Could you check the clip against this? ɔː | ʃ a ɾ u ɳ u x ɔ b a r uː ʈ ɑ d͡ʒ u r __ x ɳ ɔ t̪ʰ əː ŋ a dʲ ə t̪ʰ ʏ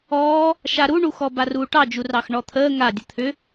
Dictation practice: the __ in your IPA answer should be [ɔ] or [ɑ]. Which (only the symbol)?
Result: ɑ